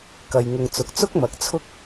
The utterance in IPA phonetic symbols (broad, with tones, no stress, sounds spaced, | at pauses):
k ɐ˨ j ŋ ʊ˨ ŋ t͡s ʊ˨ k̚ t͡s ʊ˥ k̚ m ɐ˨ k̚ t͡sʰ ʊ˥ k̚